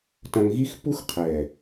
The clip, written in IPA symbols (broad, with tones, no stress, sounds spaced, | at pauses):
t ɐ̃˧ ŋ ɣ i˦ x pː u˦ x qʰ ɛ˨